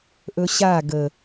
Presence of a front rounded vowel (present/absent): absent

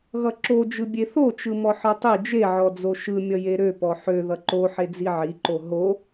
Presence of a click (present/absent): present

